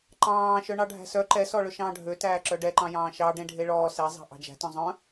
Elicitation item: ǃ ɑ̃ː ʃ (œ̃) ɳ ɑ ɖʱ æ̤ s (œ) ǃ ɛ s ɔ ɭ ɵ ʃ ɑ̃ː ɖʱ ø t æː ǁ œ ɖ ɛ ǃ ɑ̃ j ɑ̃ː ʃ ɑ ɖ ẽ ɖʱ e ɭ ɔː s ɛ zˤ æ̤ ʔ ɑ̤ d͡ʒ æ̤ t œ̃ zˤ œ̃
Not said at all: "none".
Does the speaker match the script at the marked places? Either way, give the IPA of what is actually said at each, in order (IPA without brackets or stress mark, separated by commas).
œ, œ